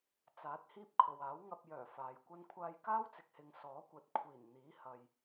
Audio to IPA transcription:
t͡s aː˨˥ t̚ h iː˥ p̚ kʰ o˨ w aː˨˥ w ŋ ɐ˧ p̚ j œː˨˩ f aː˨ j kʷ ɐ˥ n kʷʰ aː˧ j k aː˥ w t͡s ɪ˨ k̚ h ɪ˨ ŋ s ɔː˨˥ kʷ ɐ˨˥ t̚ kʷʰ iː˨˩ n n̪ iː˨˥ h ɐ˨ j

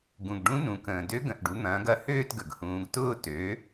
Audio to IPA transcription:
ɡ ũ˨˩ ɡ ɖ ũ˧˥ n ũ˩˧ k ə̃ː˨˩ d ø˧˥ ɡ ə̃˨˩ ʔ ɖ u˩˥ n̪ ɐ̃ː˩˥ ɡ ɐ˧˥ h øː˥˧ t ɡ ə˨˩ ɡ h ũː˩˧ ɡ t ʊː˥˧ t ø˩˥

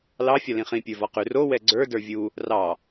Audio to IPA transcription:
l ɑ fʲ ɒ l ĩ χ ĩ pʲ ə˞ v ɒ q ʉ r o w ɛ ɡ͡ǀ ə˞ d ə˞ vʲ u | r ɑ

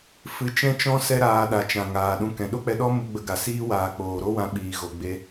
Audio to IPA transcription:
f ɨ˧ t͡ʃ ɛ̃˦ t͡ʃ ɔ̃˦ s ɛ˦ ɾ aː˧ ɗ a˨ t͡ʃ ã˨ ŋ aː˨ ɗ ũ˧ k ɛ̃˨ ɗ o˦ k͡p ɛ˧ ɗ ɔ˦ m u˧ ɡ͡b ə˧ ɡ a˨ s iː˧ w aː˨ k͡p oː˨ ɾ o˦ w ã˧ ɓ iː˨ ɣ o˨ ɡ͡b e˧

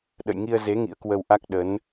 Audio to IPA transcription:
ɗ ə̰˧˨ j ŋ i˧ ə̯ z e˨˦ ŋ ḭ˧˥ ə̯ k w ə˧ w ʔ a˦˥ k̚ ɗ ə˨˦ n

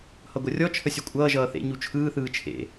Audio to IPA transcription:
h ʌ ɡʷ ʌ rʲ ɔ t͡ʃʰ ə sʲ o kʷʼ ʌː ʒ ʌː θ ḛ ɲ u t͡ʃʰ ɯː θ ɯː t͡ʃʰ ḛ

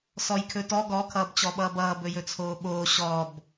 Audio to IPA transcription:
s ɔ j kʰ ɵ t ɔ ɡ ɔ kʰ ʌː b t͡ɕ ɔ ɓ ʌː b ʌː b ɵ j ɵ t͡sʰ oː ɓ oː ɕ ɔ b

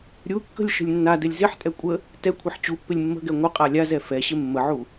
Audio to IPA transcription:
ɾʲ u kː ə̤ lʲ ʃ ə̤ lʲ nː a d ɘ lʲ z ɪ ħ tʼ ɛ kʷʼ ə | t ɛ kʷʰ ɛ ħ t͡ɕ u pː ɪ lʲ mː ə̤ ɡ ɛ ŋʷ ə qʼ a lʲ a z ɛ f ɛ ɕ ɪ mː ə ʕ u

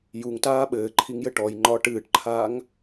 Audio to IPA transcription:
j u ŋ t aː ɓ ɘː ǃʰ i ŋ j ɘ ʈ ɔ j ŋ͡ǃ ɒː ʈ ɨː ʈ ǃʰ aː ŋ

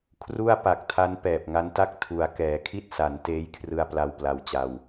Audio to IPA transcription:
kʰ r u˥˩ a̯ p a˨˩ k̚ tʰ a˦˥ n p ɛː˨˩ p̚ ŋ a˦˥ n t a˥˩ k̚ tʰ u˩˦ a̯ k ɛː˩˦ kʰ i˥˩ t̚ s a˩˦ n t eː˦˥ j kʰ r ɯ˧ a̯ p l a˧ w p l a˧ w t͡ɕ a˧ w

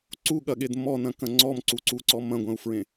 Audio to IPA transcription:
ǀ u ɠ ɐ ɠ e d m ɔ n ɐ̃ k ɐ̃ ŋ͡ǀ ɔ m ǀ u ǀ u ǀ ɔ m ɐ̃ ɡʷ ɐ̃ u̯ f ɹ ẽ

